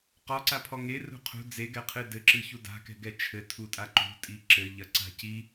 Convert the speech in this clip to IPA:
q ɔ ǀ a pʰ ɔ ŋ e r ṳ qʰ ṳ d͡z e ɡ ɛ qʰ ɨ d ɘ ǁ ɨ ç u d a̤ k ɛ̤ ɡ ɛ t͡ʃʰ ɘ tʰ u tʼ a ǃ ṳ tʼ i ǁ ɘ ʎ ɐ ǀ a̤ c i

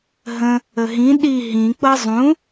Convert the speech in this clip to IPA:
ɦ ə̃ | ə ɦ ĩ ɗ i ɦ ĩ k͡p ɤ zˤ ũ

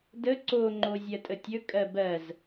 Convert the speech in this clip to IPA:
d ə ǀ o ŋ͡ǃ o zʲ ɜ tʼ ə tʲ ɵ kʼ ɜ b ɜ z

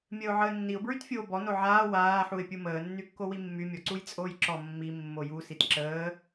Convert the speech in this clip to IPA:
mʲ əː ʊ̯ ʕ əː nː i ʊ̯ b ɹ y t fʲ oː b ɔ n o ʕ aː w aː ħ u ɪ̯ pʲ u m əː nː y kː o w i mː y mʲ ɔ ǀ u j t͡sʼ oː j ǁ ɔ mː i mː o j u s i t ǁ əː

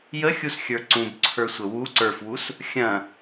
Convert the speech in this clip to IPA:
j ə xʲ u s xʲ ə˞ ǀ ũ b ǀʰ ə˞ sʷ ə w u ǀ ə˞ f w u s | xʲ ɐ̃

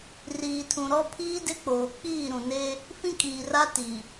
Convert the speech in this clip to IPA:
r iː˨ tʰ ũ˨ ɾ ɔ˦ pʰ iː˦ d ɪ˦ k͡p oː˨ k͡p iː˦˨ ɾ ũ˨ n e˦ | f ĩ˦ kʼ iː˨ r a˦ t i˨

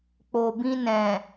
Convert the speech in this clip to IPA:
k͡p o˨ b ĩ˧ n ɛ̃˨

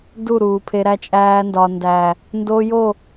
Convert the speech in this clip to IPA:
d u˦˨ ɾ uː˨ pʰ e˧ ɾ æ˧ t͡ʃʼ æː˧ n d ɒ˨ n d æ˨ | n d o˧ j o˦˨

